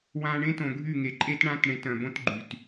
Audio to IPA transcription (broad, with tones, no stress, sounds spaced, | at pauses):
w ã˨ ɳ ẽ˦ t õ˨ ɡʱ y˦˨ ŋ e˨ ǃʼ e˦ t ɳ ã˦ t ɳ ẽ˨˦ t œ̃˨ b õ˦ t ɡ͡ǃ y˨ t